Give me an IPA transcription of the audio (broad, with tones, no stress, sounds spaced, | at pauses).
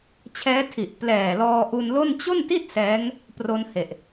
t͡ɕʰ ɛː˦˥ tʰ i˨˩ ʔ p l ɛː˨˩ l ɔː˧ ʔ u˧ n l o˥˩ n t͡ɕ o˥˩ n t i˥˩ t̚ s ɛː˦˥ ŋ | p r o˧ n h e˨˩ ʔ